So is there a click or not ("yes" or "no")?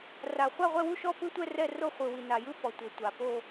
no